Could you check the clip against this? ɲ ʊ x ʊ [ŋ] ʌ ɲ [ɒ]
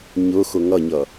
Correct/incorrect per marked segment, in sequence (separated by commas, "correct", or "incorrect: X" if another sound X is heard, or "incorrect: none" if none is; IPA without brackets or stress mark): correct, incorrect: ʌ